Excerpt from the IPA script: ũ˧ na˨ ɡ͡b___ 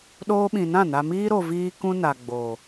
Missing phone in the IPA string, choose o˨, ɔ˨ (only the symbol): o˨